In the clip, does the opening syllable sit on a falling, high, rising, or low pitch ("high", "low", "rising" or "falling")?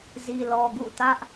low